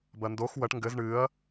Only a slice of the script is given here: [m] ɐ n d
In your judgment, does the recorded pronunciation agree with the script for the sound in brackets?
no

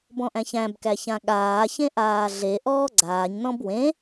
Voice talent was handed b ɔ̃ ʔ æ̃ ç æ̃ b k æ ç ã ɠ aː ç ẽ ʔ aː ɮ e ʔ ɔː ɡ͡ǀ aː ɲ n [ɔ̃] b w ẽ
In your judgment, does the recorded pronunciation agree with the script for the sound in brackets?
yes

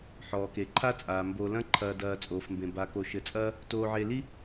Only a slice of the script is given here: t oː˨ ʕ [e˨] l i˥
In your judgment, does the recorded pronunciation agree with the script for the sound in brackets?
yes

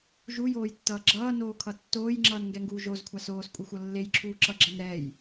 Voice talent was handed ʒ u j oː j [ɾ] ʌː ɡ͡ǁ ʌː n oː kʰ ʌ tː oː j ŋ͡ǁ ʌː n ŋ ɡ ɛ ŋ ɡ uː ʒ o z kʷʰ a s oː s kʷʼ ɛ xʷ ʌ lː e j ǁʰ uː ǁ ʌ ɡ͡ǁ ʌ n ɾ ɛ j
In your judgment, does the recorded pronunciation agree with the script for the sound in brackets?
no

